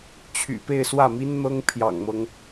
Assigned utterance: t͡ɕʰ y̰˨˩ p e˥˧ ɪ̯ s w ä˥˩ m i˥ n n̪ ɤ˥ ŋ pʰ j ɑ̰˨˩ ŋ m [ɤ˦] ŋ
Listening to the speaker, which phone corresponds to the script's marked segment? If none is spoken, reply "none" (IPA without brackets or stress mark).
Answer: ɤ˦